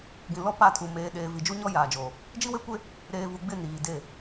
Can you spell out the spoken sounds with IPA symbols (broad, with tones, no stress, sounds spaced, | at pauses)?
ɡ ĩ˨ l ɔ˦ p a˦˨ tʰ u˨ m eː˨ ɗ eː˨ v i˨ d͡ʒ u˦ ɲ ɔ˦ j aː˨ d͡ʒ oː˨ | d͡ʒ i˦ w e˦ kʷ e˦ | ɾ eː˨ v u˨ ɡ͡b ɪ˦˨ n iː˨ d e˦˨